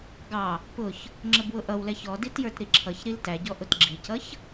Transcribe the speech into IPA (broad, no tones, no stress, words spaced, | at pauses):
ɡɑ | pʊç | ŋ͡ǁəbwʊʔʌwlɛç ɔ ditjə˞tɾiǁʰʌç ɾiltæɟɔ ʔʊtɡ͡ǁicʌç